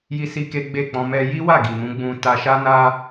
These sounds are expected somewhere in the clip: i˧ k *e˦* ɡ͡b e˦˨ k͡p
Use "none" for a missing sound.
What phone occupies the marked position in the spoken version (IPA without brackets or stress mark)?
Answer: e˦